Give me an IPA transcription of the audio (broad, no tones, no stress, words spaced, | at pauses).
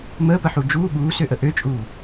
məːpəħu d͡ʒuː ɠuːsøʔə ʔøt͡ʃʼuː